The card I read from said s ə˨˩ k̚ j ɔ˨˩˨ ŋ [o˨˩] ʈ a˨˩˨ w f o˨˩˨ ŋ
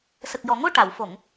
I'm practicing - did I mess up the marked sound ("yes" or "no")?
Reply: yes